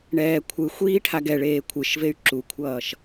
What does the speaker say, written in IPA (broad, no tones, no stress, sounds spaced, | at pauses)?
ɳ ɛː kʷʰ ɯ xʷ iː ʈʰ a ɡ ɛ ɭ eː kʷʰ ɯ ʃ v e y̯ ǁ u kʷʰ ʌː ʃ